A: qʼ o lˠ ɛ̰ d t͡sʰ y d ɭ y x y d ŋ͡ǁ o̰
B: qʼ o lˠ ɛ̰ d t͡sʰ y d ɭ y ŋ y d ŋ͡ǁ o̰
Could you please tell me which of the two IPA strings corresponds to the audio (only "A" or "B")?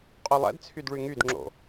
B